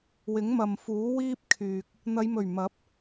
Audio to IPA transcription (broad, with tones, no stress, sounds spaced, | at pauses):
w ɪ˨˥ ŋ m ɐ˨ m f uː˨˥ w iː˥ p̚ kʰ yː˨ k̚ | n̪ ɐ˨˧ j m ɵ˨˩ ɥ m ɐ˨˥ p̚